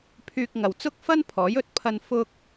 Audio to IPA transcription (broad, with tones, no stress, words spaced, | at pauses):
pʰyː˧k̚ŋɐ˨wt͡sʊ˥k̚ fɐ˥npʰɔː˨˥jɵ˧t̚pʰɐ˧n fʊ˧k̚